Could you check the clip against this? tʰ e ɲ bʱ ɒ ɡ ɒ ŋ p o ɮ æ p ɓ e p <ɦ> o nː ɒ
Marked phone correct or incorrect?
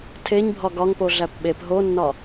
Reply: correct